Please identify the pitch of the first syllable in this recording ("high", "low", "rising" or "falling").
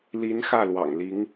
rising